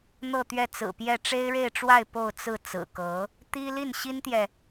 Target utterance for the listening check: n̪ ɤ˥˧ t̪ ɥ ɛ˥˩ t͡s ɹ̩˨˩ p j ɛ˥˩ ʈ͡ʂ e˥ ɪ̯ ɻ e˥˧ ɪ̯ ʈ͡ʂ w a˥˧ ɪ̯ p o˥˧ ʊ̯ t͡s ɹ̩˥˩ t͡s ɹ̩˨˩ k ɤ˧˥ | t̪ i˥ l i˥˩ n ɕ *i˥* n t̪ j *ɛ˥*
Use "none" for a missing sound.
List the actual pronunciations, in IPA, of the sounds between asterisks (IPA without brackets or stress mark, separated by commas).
i˥, ɛ˨